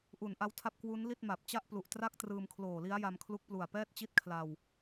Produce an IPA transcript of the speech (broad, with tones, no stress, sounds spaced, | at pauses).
ʔ u˨˩ n ʔ a˦˥ w tʰ a˥˩ p̚ k w u˦˥ n l i˥˩ t̚ m a˨˩ p̚ t͡ɕ a˥˩ ʔ p l u˨˩ ʔ t r a˥˩ k̚ t r ɯː˧ m kʰ l oː˨˩ l i˦˥ a̯ j a˧ m kʰ l u˦˥ k̚ p l u˨˩ a̯ p ɛː˥˩ t̚ t͡ɕ i˥˩ t̚ kʰ l a˧ w